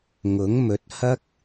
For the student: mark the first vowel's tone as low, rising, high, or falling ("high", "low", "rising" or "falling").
rising